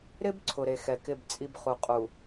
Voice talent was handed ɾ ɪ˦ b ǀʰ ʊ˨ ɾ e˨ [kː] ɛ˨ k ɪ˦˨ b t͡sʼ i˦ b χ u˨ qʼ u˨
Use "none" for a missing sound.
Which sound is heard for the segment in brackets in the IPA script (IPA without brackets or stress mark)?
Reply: x